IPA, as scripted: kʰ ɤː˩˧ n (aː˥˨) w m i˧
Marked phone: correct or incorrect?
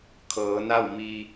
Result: incorrect